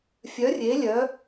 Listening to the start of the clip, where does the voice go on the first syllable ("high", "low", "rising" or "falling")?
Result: rising